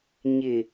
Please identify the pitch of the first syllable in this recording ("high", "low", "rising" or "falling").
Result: low